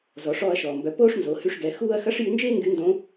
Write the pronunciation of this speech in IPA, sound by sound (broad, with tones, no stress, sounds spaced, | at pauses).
z ɔ˩˧ ʂ ɔː˧ ɐ̯ ʃ ɔː˩ m b œ˩˧ p oː˥ ʂ n z o˩˧ h y˧ ʂ ɡ ɛ˩˧ x uː˥ ɐ̯ x ɐ˧˥ ʂ j y˧ n d͡ʒ eː˥ ŋ ɡ y˧˥ n d õ˧˥